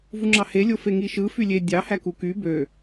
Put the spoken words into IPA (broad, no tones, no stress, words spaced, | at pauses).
vuŋ͡ǁɑhe lʲofeŋiʃɯ fylʲe dʲɑ hækuky bø